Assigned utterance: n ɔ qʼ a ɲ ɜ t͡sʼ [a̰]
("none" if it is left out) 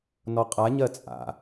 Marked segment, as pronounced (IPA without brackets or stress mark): a̰